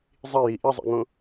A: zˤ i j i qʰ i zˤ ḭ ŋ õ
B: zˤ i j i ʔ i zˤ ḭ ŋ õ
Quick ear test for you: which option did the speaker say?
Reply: B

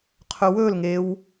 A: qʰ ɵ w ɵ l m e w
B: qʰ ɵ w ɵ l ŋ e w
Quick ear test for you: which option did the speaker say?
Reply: B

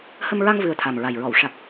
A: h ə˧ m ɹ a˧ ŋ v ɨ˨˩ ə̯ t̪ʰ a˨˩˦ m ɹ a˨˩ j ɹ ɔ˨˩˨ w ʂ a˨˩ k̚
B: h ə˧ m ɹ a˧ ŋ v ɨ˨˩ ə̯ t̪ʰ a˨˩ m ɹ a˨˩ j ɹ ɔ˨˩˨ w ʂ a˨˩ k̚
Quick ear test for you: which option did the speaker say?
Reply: B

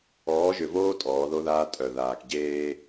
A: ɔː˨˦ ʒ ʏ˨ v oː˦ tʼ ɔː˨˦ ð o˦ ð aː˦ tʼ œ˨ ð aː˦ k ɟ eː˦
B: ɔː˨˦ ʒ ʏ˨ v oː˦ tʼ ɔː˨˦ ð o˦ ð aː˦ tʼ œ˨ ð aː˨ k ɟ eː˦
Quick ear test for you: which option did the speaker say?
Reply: B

